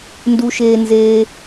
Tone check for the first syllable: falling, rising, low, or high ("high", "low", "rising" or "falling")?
high